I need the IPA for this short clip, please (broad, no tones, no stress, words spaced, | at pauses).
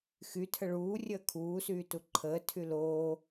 xy tʰəɭuː rʲəːkʰuː syːtuǃʰəː tʰyloː